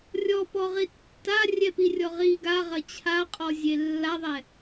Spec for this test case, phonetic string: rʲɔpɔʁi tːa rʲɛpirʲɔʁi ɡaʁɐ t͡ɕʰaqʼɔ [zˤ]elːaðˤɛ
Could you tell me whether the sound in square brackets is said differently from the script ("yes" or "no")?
yes